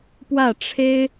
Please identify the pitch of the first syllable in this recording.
falling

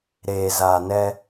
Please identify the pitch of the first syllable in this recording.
low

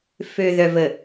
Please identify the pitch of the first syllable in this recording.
low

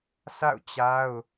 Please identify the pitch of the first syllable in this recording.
falling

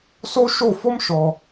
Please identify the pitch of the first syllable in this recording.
high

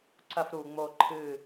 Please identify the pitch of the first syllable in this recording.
high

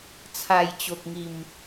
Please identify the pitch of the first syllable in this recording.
low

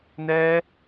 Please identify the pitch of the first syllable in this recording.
high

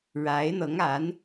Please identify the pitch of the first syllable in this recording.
rising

